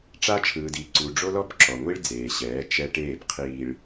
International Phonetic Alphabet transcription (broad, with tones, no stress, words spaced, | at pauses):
ʈ͡ʂa˦t͡ʃʰɯː˨diː˨ǀu˨ ɖ͡ʐo˦lɔ˦b ǁɔ˨ŋʷi˦ɭd͡zeː˨ ɕɛː˨˦ t͡ʃɛ˦ʈeː˦˨b qʰiː˨ɭ